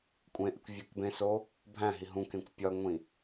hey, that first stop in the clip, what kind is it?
ejective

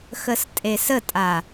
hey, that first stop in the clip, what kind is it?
ejective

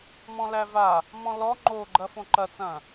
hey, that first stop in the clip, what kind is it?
click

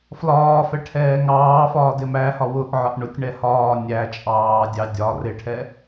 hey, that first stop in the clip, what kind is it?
aspirated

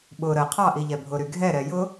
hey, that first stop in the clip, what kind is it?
implosive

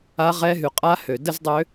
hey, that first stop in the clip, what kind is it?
ejective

